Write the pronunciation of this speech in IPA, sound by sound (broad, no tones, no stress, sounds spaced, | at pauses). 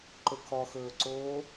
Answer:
ǃ ɵ kʰ ɔ x ɵː ǀ oː